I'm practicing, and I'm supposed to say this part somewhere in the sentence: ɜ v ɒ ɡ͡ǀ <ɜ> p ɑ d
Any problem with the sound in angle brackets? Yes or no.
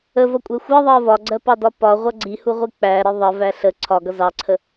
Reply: no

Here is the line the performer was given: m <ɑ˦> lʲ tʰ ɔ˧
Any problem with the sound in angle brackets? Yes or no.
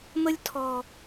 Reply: yes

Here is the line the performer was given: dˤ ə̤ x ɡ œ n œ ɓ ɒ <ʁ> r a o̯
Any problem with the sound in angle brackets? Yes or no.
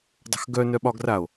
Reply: yes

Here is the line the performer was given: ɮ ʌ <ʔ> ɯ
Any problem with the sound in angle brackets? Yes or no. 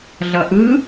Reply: no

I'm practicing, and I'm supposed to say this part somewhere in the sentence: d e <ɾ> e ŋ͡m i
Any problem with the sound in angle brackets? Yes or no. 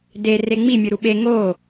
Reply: yes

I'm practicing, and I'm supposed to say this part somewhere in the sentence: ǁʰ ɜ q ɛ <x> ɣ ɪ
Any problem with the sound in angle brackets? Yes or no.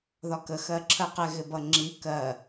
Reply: yes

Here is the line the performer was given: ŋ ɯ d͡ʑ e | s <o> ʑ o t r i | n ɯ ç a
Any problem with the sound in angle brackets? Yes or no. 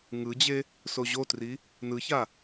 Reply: no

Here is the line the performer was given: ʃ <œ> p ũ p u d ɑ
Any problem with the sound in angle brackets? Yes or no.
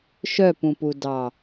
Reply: no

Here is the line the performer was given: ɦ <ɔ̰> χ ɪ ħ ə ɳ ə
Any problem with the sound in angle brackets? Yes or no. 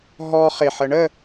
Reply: yes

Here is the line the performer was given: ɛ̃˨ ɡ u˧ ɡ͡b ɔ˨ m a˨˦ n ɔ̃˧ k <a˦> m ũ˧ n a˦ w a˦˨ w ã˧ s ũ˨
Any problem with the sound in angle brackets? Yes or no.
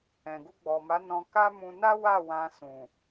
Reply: no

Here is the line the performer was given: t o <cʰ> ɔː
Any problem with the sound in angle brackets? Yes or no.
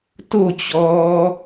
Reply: yes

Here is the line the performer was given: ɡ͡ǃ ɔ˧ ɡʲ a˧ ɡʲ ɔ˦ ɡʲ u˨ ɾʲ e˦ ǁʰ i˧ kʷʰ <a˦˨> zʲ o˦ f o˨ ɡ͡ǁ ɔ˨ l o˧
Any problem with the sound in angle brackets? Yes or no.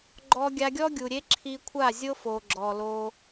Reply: no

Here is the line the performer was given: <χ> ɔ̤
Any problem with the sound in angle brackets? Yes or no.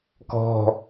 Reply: yes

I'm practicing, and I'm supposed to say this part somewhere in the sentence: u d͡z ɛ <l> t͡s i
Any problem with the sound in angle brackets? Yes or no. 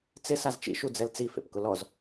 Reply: no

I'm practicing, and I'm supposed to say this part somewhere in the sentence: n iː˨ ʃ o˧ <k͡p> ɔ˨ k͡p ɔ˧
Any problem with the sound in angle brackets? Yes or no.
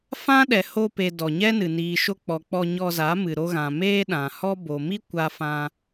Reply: no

